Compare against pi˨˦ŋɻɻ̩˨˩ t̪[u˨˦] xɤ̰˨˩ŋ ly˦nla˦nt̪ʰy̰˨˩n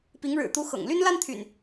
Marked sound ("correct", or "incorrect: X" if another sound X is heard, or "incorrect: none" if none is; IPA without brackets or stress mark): correct